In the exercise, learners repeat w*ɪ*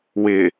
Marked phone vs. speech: correct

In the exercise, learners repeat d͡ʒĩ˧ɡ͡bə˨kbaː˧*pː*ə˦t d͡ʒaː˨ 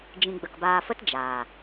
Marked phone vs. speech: incorrect: f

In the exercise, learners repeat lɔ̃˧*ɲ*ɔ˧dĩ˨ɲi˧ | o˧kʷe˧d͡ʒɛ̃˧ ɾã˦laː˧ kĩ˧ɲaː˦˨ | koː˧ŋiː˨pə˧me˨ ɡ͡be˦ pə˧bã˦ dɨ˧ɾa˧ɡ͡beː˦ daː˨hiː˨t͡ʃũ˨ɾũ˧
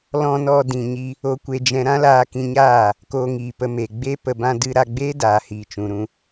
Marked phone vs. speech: incorrect: n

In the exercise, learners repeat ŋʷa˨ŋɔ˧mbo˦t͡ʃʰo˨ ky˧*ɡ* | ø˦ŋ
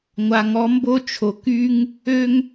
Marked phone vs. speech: incorrect: ŋ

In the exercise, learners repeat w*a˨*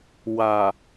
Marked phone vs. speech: correct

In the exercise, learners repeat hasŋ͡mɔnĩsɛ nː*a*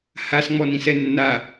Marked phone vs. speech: correct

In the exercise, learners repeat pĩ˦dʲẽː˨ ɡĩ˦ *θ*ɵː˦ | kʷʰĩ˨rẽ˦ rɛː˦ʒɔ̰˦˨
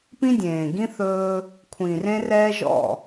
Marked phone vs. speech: correct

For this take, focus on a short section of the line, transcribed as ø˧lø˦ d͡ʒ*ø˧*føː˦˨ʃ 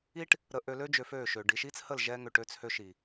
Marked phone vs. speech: correct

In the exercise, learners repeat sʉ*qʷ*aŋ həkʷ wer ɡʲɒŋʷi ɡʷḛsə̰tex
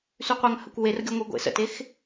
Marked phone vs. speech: correct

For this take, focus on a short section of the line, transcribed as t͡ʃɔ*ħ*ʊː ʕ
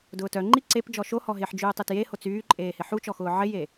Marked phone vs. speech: incorrect: x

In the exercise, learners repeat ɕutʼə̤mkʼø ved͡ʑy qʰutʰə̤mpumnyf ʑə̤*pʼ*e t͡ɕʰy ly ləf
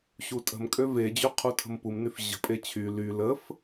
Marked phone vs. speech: correct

